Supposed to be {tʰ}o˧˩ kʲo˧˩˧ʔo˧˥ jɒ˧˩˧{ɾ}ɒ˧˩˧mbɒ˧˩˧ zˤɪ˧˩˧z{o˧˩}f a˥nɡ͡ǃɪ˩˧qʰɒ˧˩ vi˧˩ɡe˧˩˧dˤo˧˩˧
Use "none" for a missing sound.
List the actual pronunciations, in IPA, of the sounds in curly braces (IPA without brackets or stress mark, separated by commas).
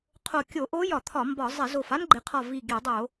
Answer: qʰ, t̪ʰ, o˧˩